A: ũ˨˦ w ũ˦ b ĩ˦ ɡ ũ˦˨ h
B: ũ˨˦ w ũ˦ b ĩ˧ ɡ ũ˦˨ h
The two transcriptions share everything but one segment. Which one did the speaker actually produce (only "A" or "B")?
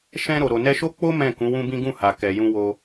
A